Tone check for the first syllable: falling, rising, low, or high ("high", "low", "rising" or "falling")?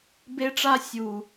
high